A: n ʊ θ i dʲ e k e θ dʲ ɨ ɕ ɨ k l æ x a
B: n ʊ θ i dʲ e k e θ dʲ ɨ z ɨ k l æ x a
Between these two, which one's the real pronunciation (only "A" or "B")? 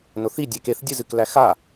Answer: B